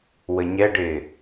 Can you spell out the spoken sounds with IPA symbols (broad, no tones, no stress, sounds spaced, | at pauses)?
w ə ɲ ɛ ɖ ɪː